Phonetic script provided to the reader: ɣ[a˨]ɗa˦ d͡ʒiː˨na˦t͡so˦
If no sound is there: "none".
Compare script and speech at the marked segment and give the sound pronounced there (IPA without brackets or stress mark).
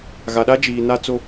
a˨